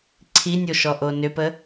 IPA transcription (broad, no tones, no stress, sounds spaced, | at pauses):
ǀʰ i nʲ o ʃ ɔ ʔ o n ʏ p ə